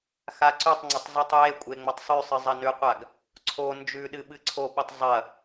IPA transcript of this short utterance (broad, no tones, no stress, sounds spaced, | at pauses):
x a ǀ ʉ tˤ ŋ͡ǀ ɐ tˤ z ɨ tˤ j e kʷʼ e ŋ͡m ɐ tˤ sˤ ʉ sˤ ɨ zˤ ɐ n ʉ qʷ a ɡ | ǀʰ o n d͡ʒ ʉ ɗ ɨ ɓ ɨ ǀʰ o ɓ ɨ tˤ zˤ ɐ